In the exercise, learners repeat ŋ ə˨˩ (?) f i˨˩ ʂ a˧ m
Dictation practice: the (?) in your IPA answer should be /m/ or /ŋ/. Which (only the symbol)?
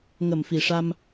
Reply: m